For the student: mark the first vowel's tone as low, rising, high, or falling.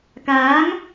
rising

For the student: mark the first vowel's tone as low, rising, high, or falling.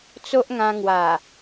high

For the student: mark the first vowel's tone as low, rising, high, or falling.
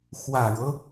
low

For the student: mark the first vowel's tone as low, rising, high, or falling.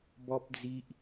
high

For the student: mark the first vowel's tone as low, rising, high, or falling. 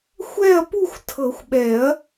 falling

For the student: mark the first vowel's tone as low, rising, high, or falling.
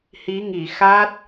rising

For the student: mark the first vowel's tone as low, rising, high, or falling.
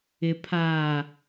low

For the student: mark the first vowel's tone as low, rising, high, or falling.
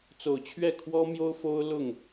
low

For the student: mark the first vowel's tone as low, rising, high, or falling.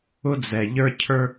high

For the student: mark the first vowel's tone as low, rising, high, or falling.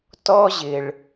high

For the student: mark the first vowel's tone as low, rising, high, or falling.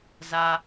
low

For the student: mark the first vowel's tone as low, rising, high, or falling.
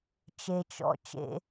low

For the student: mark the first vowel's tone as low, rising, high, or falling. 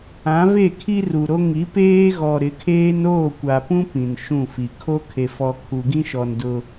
rising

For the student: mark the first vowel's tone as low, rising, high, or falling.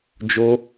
high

